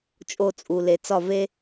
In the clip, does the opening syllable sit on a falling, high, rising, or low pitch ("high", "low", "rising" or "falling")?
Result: falling